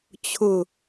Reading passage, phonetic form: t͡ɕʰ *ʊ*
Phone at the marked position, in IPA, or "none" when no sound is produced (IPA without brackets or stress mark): ʊ